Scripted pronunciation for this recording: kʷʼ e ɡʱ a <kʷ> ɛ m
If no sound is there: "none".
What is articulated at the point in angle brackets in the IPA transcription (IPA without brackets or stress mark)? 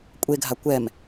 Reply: kʷ